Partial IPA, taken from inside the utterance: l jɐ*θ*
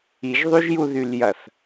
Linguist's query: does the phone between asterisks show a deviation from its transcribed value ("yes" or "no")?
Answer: no